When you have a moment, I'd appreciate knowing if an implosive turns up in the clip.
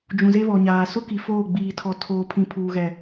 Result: no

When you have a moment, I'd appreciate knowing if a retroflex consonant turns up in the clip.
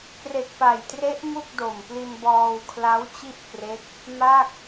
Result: no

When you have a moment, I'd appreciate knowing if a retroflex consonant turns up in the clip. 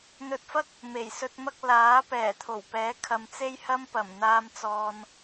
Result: no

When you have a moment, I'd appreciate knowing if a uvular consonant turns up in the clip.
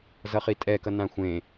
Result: yes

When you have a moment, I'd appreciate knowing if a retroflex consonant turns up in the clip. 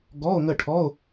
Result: yes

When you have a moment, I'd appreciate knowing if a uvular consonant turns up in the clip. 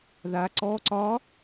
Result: no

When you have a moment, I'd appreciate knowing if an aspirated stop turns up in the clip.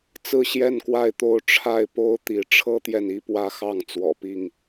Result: yes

